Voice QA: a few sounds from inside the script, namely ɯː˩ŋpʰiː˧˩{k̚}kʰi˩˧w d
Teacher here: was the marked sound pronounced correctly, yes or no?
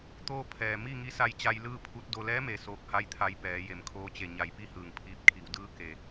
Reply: no